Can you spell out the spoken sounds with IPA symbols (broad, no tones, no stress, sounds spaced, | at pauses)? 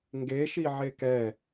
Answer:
ŋ ɡ e ʃ i ʕ e k ɛ